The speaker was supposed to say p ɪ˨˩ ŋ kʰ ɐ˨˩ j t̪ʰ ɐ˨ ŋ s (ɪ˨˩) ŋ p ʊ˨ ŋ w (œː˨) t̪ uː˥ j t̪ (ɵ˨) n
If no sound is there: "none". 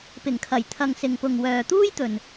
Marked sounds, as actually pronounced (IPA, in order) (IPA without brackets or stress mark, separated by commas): ɪ˨, œː˨, ɵ˨